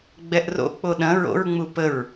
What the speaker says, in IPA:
ɡ͡b ɛ ʔ r o̰ k͡p o ɗ ɐ̃ ɹ o̰ ɹ ŋ͡m u p ə ɹ

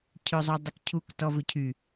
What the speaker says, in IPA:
cʰ ø zˤ œ dˤ ə k cʰ u k t ɔ v ø cʰ y

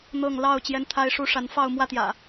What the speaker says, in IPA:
n̪ ɤ˥˨ ŋ l ɑ˥˨ ʊ̯ t͡ɕ j ɛ˦ n t̪ʰ a˦ ɪ̯ ʂ u˦ ʂ a˨˦ n f ɑ˥˨ ʊ̯ m w ä˥˨ t̪ j ä̰˨˩

